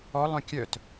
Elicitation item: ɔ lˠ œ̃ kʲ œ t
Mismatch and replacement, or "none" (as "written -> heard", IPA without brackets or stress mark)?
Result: none